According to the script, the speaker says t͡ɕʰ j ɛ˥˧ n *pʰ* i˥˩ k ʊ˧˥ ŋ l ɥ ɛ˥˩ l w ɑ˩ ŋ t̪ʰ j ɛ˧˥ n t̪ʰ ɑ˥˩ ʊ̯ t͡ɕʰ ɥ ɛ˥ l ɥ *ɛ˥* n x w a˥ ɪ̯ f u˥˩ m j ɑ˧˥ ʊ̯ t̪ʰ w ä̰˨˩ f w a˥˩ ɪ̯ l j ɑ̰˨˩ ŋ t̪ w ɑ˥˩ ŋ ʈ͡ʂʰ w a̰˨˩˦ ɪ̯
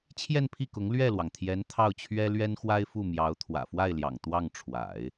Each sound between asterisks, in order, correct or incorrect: correct, correct

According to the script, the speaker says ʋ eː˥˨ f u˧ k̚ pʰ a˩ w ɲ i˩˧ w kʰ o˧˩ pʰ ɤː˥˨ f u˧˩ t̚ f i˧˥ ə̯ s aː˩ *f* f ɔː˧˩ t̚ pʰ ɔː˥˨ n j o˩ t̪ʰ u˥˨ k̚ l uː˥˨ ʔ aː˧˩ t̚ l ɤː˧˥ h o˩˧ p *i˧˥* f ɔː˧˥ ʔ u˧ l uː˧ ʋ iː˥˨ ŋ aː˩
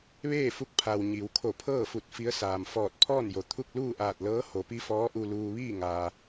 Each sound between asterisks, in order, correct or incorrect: incorrect: m, correct

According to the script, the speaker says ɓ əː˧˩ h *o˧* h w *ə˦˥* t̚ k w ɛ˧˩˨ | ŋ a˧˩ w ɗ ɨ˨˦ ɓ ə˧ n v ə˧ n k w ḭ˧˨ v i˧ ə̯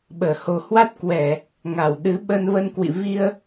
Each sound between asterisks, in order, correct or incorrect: incorrect: o˨˩, incorrect: a˦˥

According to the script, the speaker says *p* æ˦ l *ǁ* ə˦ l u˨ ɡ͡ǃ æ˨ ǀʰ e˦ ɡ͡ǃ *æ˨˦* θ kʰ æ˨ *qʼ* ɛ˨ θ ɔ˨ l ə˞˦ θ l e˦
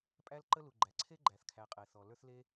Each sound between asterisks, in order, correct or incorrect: incorrect: pʼ, incorrect: ǃ, incorrect: æ˨, correct

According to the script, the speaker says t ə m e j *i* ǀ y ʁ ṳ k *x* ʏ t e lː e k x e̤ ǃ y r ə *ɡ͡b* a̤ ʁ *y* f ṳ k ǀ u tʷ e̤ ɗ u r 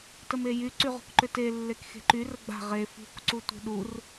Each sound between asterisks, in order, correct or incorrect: incorrect: y, incorrect: ǃ, correct, incorrect: e

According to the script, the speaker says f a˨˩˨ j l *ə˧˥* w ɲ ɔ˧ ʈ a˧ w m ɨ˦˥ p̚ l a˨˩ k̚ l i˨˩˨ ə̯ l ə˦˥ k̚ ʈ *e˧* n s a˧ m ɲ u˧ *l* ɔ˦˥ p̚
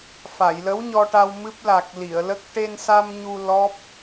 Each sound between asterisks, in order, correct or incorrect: correct, correct, correct

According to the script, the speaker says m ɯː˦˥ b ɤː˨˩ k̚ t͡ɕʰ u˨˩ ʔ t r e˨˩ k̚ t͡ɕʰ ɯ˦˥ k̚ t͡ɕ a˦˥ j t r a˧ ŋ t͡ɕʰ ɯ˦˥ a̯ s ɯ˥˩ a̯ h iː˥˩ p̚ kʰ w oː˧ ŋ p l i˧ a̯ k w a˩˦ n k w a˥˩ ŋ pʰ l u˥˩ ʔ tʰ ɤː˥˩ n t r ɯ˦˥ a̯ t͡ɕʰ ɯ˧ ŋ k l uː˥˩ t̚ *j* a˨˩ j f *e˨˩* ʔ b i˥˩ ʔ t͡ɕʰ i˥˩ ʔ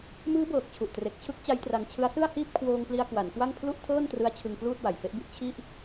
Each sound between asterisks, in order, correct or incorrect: incorrect: w, incorrect: e˦˥

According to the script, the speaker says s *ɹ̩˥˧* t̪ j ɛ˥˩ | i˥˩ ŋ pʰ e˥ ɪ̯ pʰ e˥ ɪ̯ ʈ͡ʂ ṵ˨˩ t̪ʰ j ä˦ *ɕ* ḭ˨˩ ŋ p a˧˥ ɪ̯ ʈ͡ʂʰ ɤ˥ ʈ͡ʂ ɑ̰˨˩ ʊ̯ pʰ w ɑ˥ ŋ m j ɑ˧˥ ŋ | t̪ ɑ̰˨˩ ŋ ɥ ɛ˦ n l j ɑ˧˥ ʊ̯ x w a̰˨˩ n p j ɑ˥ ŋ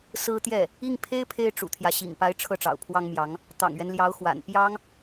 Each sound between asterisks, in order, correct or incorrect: incorrect: ɹ̩˥, correct

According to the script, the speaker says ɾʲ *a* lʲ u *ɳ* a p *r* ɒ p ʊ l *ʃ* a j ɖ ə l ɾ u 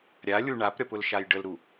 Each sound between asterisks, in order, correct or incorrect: correct, correct, incorrect: ɾʲ, correct

